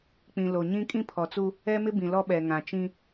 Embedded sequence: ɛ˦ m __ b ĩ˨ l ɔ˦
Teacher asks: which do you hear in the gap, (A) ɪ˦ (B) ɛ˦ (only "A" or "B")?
A